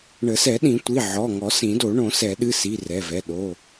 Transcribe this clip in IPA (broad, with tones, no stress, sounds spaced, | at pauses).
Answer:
ɳ ə˨˩˦ s ɛ˨˩˦ ɗ ĩ˨˩˦ tʷ i˩˧˩ ʕ ɔ˩˧˩ ŋ ɔ˨˩˦ s ĩ˨˩˦ d o˨˩˦ ɳ õ˨˩˦ s ɛ˨˩˦ ɗ ɨ˩˧˩ s i˩˧˩ r ɛ˩˧˩ v ɛ˩˧˩ ɗ o˩˧˩